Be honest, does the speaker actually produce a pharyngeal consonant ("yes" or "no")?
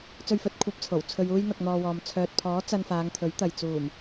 no